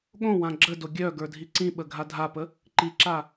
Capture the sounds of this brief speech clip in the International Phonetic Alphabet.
ɠ õ w ã ɡ͡ǁ ə d o ɡʲ œ ɡ ə˞ dʱ i ǀ ĩ ɓ ə ɡʱ a dʱ a p ə | ǃ i ǁ a

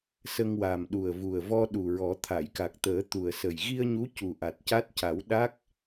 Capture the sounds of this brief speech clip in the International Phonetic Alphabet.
s ə˧ ŋ w a˨˩ m ɗ u˨˩ ə̯ v u˨˩ ə̯ v ɔ˧ ɗ u˨˩ ɹ ɔ˨˩˦ t̪ʰ a˨˩˨ j k a˨˩ k̚ t̪ əː˨˩˦ t̪ u˨˩ ə̯ s ə˨˩ j ɣ i˧ ə̯ ɲ u˧˥ c u˨˩ ʔ a˨˩ t̚ c a˦˥ t̚ c a˨˩˦ w ɗ a˦˥ k̚

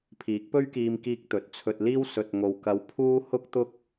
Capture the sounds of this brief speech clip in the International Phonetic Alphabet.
pʰ iː˨˥ k̚ p ɵ˥ ɥ k iː˧ m k iː˧ k̚ t̪ ɵ˨˥ t̚ t͡sʰ ɵ˧ t̚ l iː˥ w s ɵ˨ t̚ ŋ o˨ w k ɐ˧ w pʰ uː˥ h ʊ˥ k̚ t̪ ʊ˥ k̚

